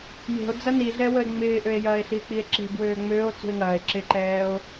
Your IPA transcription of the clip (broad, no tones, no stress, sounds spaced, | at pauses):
j e̤ o̯ d͡z ɐ n i ɮ ɛ w ə e̯ ŋ͡m ɪː ʔ ø e̯ j ɐː e̯ ɬ i e̯ k͡p i e̯ ǁ e̤ b w øː ŋ͡m øː o̯ t͡s ṳ e̯ ŋ ɐː e̯ ǁ ɪ ǃ ɛː o̯